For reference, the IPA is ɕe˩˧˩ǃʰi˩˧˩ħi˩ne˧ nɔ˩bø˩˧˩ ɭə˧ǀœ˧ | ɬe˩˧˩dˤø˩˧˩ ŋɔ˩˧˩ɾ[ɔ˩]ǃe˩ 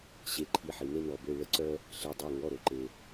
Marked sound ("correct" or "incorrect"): incorrect